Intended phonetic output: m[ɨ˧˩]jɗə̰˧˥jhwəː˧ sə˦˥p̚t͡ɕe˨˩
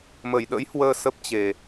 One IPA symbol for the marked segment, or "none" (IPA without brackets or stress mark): ə˧˩